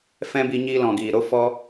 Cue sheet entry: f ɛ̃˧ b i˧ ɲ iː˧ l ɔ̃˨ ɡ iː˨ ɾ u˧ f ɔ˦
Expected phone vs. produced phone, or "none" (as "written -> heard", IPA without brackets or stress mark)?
u˧ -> o˧